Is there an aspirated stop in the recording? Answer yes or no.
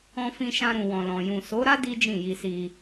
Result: no